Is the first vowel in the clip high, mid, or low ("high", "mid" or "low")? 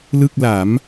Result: high